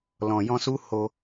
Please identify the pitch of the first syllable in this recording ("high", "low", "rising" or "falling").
low